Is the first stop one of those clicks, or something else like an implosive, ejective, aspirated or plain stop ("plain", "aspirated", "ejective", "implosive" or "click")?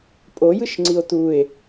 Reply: ejective